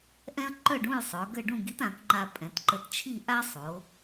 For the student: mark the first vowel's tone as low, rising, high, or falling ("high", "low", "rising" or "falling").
high